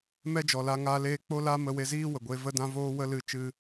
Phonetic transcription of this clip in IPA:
mɛ˦d͡ʒɔ˨la˧ ŋaː˧leː˧ k͡po˦ la˦mə˧we˧ ziː˦ wə˨ɡʷe˧ və˦dã˦voː˦wə˦ lɨ˧ t͡ʃɨ˦

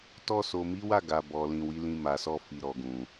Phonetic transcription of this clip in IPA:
tɔ˧so˨mi˨˦wa˦˨ ɡa˨ bɔ˨lĩ˨ wi˨˦lĩ˧ma˨sɔ˧ fi˨ɾɔ˨ɡũ˨

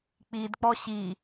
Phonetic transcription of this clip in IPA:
k͡pidk͡pɔ ɕi

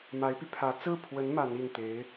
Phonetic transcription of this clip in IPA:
ma˧˥ɪ̯py˧pʰä˧˥ t͡sɹ̩˥˩pʰwə˧˥n ma˧˥ni˥˩n t̪e˧˥ɪ̯

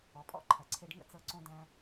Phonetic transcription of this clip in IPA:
ɔ˩pʼɔ̰˥ ǃʰɐ˩ǀʰe˧ɖ ŋə̰˥t͡sɤ˧ ǀõ˧dæ̃˧

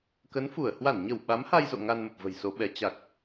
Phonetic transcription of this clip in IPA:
kə˨˦nfu˧˩ə̯ hwa˧˩nɲə˧˩w ɓa˨˦mha˧jzo̰˧˨ ŋa˧nmə˨˩p̚və̤˨˩jso˨˦ ɓɛ˨˦ t͡ɕa˨˩k̚

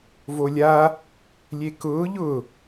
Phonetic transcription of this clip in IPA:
volʲa | lʲekʊː ʎʊ

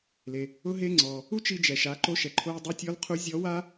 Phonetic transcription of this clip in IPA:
le˩ | ʊ˥ɦe˥ŋ͡ǀɔ˩ | u˥t͡ʃi˧d͡ʒɛ˩ ʃa˩˧ǃo˧ʃɛ˩ ǃʰo˧jdˤu˧˥tʲɔ˧˥l qʰu˧˥ zʲɔ˧˥wa˥

